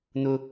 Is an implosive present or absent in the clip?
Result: absent